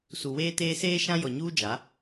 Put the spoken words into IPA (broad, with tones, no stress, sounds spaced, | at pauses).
s u˨ w eː˦ t eː˦ s eː˦ ʃ ã˦ j ɔ˨ ɲ uː˦ d͡ʒ a˨˦